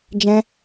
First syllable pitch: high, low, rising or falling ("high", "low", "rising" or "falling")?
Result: high